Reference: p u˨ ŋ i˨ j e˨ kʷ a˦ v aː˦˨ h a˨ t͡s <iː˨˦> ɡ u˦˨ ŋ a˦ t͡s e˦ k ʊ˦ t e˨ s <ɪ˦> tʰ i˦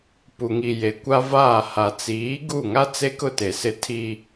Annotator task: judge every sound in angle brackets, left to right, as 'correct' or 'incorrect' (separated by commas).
correct, correct